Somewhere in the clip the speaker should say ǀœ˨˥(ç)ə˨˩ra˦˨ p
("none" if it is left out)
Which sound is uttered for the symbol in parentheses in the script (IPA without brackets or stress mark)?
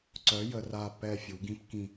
j